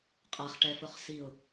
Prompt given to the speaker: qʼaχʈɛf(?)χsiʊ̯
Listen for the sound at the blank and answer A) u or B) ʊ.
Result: B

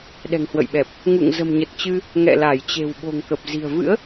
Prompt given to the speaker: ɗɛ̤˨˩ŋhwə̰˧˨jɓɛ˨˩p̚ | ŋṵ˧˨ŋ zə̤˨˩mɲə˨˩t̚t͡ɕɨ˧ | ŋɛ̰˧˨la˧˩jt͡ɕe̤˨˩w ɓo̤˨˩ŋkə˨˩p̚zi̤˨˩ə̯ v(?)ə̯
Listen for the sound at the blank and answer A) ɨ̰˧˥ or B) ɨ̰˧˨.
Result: A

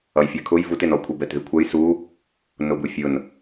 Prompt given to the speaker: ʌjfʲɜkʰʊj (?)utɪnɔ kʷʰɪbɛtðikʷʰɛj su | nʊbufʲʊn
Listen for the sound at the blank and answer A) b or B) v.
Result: B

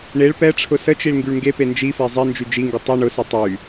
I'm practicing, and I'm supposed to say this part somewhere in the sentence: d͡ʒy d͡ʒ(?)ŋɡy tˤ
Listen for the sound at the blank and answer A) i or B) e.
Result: A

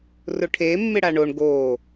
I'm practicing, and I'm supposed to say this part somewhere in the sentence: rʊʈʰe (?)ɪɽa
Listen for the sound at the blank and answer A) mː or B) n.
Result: A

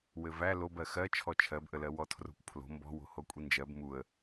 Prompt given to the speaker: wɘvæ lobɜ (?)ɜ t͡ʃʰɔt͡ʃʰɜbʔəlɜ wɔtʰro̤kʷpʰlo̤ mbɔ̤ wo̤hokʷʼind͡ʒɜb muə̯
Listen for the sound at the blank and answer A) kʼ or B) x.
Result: B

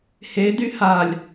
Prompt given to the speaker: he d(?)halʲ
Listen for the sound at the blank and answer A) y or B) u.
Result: A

